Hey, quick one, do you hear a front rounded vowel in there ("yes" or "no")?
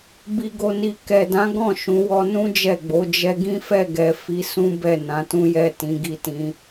no